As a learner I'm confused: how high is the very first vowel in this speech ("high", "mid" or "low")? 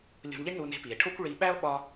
high